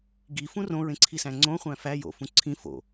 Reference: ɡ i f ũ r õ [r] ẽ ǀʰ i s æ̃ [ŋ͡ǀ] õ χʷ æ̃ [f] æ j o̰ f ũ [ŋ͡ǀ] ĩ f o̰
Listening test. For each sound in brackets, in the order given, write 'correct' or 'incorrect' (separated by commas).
incorrect, correct, correct, incorrect